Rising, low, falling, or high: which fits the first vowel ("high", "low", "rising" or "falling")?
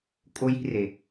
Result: high